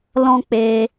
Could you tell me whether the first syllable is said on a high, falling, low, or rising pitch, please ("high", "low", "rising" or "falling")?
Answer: high